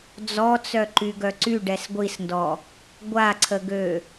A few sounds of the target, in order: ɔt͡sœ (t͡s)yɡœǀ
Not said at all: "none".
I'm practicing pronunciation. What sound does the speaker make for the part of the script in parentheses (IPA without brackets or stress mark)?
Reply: ǃ